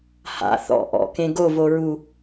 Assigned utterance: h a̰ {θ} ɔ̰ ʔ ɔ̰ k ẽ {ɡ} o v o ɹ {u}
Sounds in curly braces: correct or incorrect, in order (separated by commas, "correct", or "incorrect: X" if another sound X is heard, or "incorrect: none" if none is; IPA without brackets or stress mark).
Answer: correct, correct, correct